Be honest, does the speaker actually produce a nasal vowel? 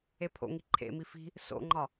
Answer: no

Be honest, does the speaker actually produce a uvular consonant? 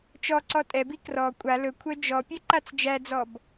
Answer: no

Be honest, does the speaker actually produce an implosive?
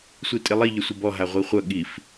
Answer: yes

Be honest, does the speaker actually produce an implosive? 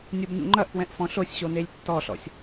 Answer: no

